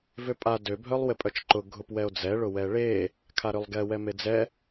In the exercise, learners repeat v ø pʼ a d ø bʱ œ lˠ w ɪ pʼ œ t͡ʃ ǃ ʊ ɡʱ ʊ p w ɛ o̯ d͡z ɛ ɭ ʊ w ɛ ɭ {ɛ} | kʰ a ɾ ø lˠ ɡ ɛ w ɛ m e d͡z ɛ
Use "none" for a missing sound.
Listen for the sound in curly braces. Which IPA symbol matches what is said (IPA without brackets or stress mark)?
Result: e